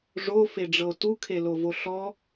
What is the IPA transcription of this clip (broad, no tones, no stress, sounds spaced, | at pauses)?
ʐ o f e ɖ͡ʐ ɤ o̯ t u kʰ e l o v o ɬ ɔ